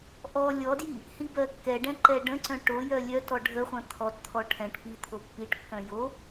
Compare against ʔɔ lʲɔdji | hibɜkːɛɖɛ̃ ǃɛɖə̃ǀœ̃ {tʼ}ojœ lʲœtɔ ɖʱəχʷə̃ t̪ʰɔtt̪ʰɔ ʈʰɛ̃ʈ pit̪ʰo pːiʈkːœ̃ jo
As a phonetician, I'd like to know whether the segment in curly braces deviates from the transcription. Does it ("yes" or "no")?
yes